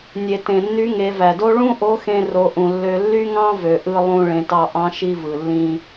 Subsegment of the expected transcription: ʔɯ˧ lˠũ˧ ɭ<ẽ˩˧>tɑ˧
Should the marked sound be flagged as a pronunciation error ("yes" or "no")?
no